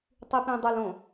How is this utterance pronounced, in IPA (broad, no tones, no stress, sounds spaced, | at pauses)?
tˤ i p ĩ dˤ ə l õ